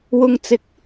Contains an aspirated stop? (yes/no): no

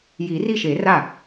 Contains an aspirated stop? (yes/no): no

